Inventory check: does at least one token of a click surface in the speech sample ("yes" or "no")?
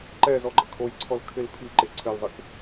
yes